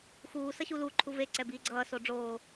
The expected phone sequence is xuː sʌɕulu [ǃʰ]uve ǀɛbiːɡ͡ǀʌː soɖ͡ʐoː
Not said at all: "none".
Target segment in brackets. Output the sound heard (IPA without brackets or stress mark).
ǃʰ